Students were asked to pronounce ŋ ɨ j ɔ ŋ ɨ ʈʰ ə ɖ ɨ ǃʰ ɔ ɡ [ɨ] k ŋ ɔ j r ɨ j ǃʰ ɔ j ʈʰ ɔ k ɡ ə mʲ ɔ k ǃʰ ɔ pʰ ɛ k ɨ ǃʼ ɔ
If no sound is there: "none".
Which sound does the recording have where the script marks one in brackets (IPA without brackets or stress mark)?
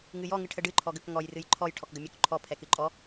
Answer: ə